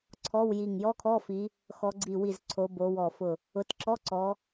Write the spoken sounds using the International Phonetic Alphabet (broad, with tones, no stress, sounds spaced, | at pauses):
ǀʰ ɔ˧˥˧ w j i˧˩ ŋ j ɔ˧˥˧ kʰ ɔ˧˥˧ f i˨˦ | x ɔ˨˦ ɡ͡ǀ i˧˩ w i˧˩ z ǀʰ o˨˦ b o˨˦ w ɔ˧˩ f ʊ˧˩ | ʊ˨˦ t ǁ ɔ˧˥˧ ǀ ɔ˨˦